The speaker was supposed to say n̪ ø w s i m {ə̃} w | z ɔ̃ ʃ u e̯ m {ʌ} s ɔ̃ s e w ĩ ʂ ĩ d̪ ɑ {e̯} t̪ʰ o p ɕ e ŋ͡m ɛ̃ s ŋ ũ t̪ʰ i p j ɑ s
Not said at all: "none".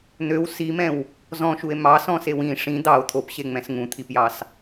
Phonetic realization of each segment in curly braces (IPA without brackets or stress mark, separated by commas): ɛ̃, ɑ, o̯